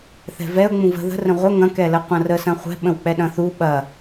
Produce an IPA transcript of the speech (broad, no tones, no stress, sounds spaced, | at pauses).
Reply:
θ ɛ̤ v ɛ ʊ̯ ŋ͡m ũ v ə̤ ð ə̤ r ə̃ ʁʷ ə ŋ ɐ̃ k ɛ l ə qʷ ɐ̃ r ə s ɐ̃ χʷ ɛ̤ ɓ ə̃ w k͡p ɛ ɗ ɐ̃ θ u ɓ ɐ